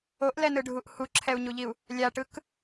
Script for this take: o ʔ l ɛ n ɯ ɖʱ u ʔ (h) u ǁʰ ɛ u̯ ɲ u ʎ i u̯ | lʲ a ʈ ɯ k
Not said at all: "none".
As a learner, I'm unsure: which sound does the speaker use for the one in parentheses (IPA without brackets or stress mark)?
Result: h